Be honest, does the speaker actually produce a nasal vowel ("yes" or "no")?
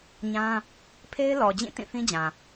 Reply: yes